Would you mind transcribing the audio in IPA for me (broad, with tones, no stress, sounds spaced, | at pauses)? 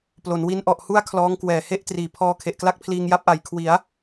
p l o˩˦ n w i˦˥ n ʔ ɔ˨˩ ʔ h u˥˩ a̯ kʰ l ɔː˦˥ ŋ k w ɛː˨˩ h e˥˩ ʔ t r iː˨˩ pʰ ɔː˧ kʰ e˨˩ ʔ k l a˥˩ k̚ pʰ l iː˧ ŋ j a˦˥ p̚ ʔ a˨˩ j kʰ w i˩˦ a̯